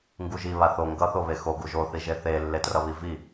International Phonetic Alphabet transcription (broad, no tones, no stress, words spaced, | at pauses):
ŋɡuʒi βaθo ŋɡʌ θoβexo ɡuʒo θiʒeθe lːetrʌβivi